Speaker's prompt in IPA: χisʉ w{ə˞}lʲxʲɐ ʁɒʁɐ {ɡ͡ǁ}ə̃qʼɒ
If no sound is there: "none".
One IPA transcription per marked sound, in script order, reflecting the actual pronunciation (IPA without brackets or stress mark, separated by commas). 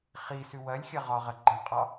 ɐ, ɡ͡ǃ